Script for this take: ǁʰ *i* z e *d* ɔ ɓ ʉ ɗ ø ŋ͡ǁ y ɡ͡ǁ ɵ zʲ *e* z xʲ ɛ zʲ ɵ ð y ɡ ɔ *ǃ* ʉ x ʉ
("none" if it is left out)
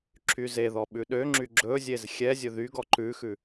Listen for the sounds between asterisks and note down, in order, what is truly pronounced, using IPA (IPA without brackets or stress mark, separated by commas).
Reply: y, ð, e, ǃ